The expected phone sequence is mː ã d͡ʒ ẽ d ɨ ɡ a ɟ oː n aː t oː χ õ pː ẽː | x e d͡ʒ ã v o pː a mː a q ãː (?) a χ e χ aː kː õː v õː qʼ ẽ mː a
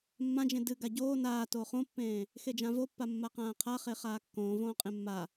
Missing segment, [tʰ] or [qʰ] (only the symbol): qʰ